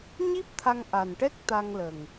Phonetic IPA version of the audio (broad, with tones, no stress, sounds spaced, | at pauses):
ɲ i˦˥ p̚ t̪ʰ a˧ ŋ ʔ a˨˩ n ʈ ɛ˦˥ k̚ t̪ a˧ ŋ l ə˨˩ ŋ